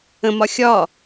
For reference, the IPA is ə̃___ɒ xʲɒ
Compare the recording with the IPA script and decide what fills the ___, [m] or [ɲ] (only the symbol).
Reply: m